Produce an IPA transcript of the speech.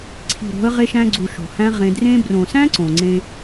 ǀʰi̤˨ ɾo̤˨˦ə̯ ʁe˧ʃæ̃˧ɡ͡ǀu˨ ʃo̤˨hæ̃˦ ʁẽ˧ drẽ˧brõ˨sæ̃˦ ǀõ˨ŋ͡ǀẽ˧

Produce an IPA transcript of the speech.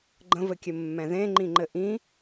ɡ͡ǃə̃vɘkʲɘmːɛ̃ ðẽŋ͡ǃĩŋ͡ǃɘ ʔĩ

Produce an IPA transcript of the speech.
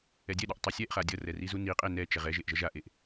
ɛdʲɛɗʌʔ tˤasʲɛʔχa dʲʌrɛ rizuniqʼe nɛ t͡ʃɛʁɛʒeʔ ʒʌʒaʔeʔ

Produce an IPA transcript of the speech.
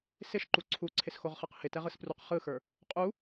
sɪʃǃu ǀʰuǀʰɪsxoʁχɯq hɪtɛʁɯspruq χɯxə˞ | qʼu

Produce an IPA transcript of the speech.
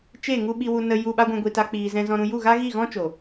t͡ʃe˦˨ ŋu˦ ɓi˧wu˧nə˧ ju˧ɓa˦ɡʷɛ̃˧ ɡʷi˧ta˦k͡piː˧ zɛ̃˧zɔ̃˧ɾũ˧ ju˦˨ɣa˦ɣi˦˨ɣɔ̃˦ t͡ʃo˨

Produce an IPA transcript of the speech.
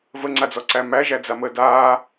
vəŋ͡ǀad͡zɔǀæ mæʒæ d͡zaməːdaː

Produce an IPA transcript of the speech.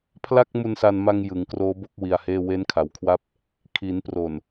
pʰla˥˩k̚mu˧nsa˧nma˧ŋ jɯ˩˦ŋkroː˦˥bo˥˩k̚ wi˧a̯heː˥˩ we˦˥nkʰa˩˦wkʰwa˦˥p̚ | kʰi˩˦npro˨˩n

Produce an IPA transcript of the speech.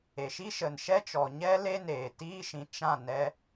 e˨ʃi˦ ʃə˨nʃɛ˦t͡ʃɔ˨ ɲɛ˦ le˦neː˨tiː˦ʃĩ˧ t͡ʃã˦˨ nɛ˧

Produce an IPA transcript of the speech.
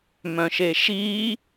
mœ̃ʃeʃi

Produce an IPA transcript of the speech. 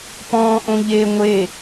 pɔ̃ːʔõʎe ŋʷe

